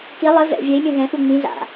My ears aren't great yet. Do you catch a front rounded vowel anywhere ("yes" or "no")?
no